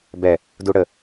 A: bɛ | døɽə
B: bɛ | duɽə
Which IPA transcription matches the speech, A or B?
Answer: B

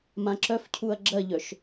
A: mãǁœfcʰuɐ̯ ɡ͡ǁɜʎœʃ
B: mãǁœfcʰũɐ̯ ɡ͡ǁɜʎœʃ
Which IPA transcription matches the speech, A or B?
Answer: A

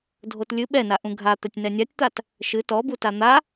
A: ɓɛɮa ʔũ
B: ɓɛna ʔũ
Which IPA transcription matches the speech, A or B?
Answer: B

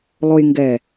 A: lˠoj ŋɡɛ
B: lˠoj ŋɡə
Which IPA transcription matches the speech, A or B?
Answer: A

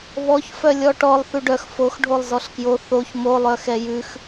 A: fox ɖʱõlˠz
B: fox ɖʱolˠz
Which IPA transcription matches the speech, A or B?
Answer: B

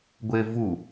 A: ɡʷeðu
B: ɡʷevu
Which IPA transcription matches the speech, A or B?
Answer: B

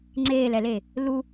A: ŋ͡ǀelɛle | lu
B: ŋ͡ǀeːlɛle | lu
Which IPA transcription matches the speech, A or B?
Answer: B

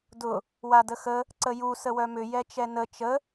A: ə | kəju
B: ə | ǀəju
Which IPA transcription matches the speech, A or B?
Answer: B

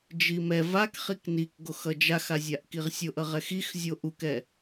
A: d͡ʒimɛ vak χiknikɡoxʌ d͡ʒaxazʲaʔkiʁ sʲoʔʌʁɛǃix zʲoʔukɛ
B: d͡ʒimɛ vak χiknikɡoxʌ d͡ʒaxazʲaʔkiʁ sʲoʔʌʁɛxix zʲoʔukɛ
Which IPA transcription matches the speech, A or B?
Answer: B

